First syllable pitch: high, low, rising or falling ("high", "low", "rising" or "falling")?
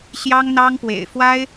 high